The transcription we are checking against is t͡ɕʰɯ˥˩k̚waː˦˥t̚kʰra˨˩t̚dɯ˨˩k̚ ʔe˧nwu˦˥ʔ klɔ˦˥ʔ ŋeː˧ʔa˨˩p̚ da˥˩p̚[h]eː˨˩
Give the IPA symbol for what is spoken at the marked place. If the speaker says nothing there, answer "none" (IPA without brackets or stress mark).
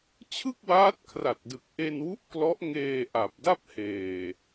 h